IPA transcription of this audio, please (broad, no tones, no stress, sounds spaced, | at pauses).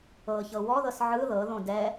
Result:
ɤ ç ɤ w ɔ ð ɤ s ʕ ɯ ð ɤ ð õ d ɛ